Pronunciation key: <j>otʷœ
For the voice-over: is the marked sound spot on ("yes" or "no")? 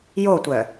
yes